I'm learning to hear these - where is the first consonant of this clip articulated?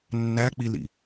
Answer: tongue tip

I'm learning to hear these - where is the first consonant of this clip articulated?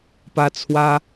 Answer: lips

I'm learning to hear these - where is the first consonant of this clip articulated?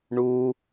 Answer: retroflex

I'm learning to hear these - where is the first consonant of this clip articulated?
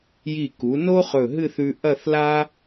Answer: palate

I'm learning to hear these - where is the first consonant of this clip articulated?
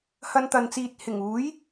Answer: throat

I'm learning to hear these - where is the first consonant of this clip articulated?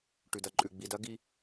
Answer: retroflex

